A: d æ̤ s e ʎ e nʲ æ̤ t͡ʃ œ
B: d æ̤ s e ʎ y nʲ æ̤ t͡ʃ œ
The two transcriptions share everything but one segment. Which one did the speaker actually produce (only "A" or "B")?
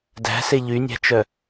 B